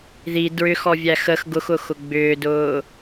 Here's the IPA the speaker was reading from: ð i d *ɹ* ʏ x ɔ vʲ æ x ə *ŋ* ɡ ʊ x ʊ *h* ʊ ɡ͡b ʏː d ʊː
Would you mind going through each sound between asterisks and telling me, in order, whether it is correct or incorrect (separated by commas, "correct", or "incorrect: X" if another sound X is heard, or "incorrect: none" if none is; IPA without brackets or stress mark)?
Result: correct, incorrect: x, incorrect: x